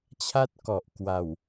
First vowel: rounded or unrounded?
unrounded